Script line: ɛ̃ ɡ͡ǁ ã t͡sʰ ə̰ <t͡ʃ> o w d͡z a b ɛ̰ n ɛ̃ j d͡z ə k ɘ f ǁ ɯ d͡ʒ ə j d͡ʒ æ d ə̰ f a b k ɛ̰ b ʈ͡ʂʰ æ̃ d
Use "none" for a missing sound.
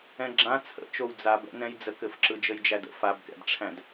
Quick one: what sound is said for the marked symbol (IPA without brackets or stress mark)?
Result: t͡ʃ